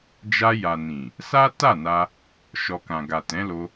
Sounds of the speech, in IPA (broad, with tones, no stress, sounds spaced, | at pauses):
d͡ʒ a˧ j a˨ n ĩ˨ | s a˦ t a˦˨ n a˧ | ʃ ɔ˨ k ã˨ ɡ a˨ t ɛ̃˨˦ l o˧